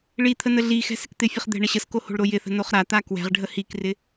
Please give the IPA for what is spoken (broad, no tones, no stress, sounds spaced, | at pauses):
ɭ i t̪ʰ ə n ə ɮ i x ɛ̤ s ɪ k t̪ ɪ fʲ ə χ d̪ ɛ̤ ɳ ə ɕ ə s k o h o̤ ɭ ɾ o j ɪ θ ə̤ n o χ ɾ a t̪ a k w ɛ̤ ʁ ɖʱ ə h i k r ɪ